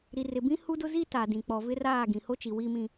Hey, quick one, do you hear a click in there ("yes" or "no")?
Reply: no